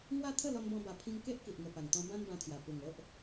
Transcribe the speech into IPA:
ŋwa˦t̪ʰə˥˧lɔ˧nbɔ̃˧ ba˨˩pʰĩ˧ŋke˦ʔ ki˨ʔŋə˨˩pa˨˩ŋt̪ɔ̃˧ bã˦nbã˧t̪ʰja˨˩ pu˨˩ŋo˦ʔ

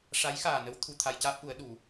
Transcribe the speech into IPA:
ʂa˧˥jxaː˨˩nə˧˥w t̪ʰu˨˩ t̪ʰa˧jcaː˦˥p̚ʔu˨˩˦ə̯ ɗu˨˩˦

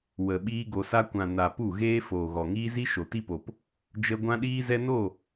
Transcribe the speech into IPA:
wə˨ ɓiː˦ɡo˧sa˦ kʷã˨ na˨ pu˦˨ɣeː˦ foː˨ɣɔ˨ŋiː˦zi˦ ʃo˨ti˦po˨p | d͡ʒə˦ ɡʷã˦ɗiː˦zɛ˦ no˦˨

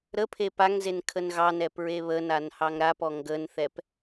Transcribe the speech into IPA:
ɾəpʰe paŋzen kʰənɣɑnɛ pɹeβənan hɑŋɾapɔ ŋɡənθɛp

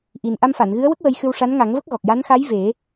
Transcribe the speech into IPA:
ʔi˨˩n ʔa˧mfa˨˩˨n ɣɨ˧˥ə̯wə˦˥k̚ wə˧jxɨ˧w ʂa˧˥nŋa˨˩˦ŋvə˦˥k̚ɣɔ˨˩k̚ ja˧˥nxa˧˥j ve˨˩˦

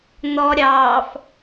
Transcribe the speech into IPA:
n̪ɔ ɾʲɑːf

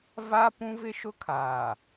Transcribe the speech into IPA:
va˦ pũ˦vɪ˦ʃʊ˦kʰaː˨

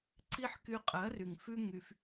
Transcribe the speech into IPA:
ǀi˦ħ ky˧qʼɜ˨˦ry˨ŋ fʉ˦ŋy˧f

